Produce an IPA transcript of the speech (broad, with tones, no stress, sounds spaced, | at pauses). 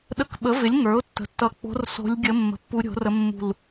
ɗ ə˧˩ k ɓ ə˩˥ v ɪ˩˥ lʲ ŋ ə˞˩˥ ʊ̯ tː ə̤˩˥ tː ʌ˧˩ k͡p o̤˧˥ r s o̤˧˥ lʲ ɡʲ ə˧˥ mː ə̤˧˩ pː u˧˥ ɾʲ o̤˩˥ r ə˧˥ mː ṳ˧˩ l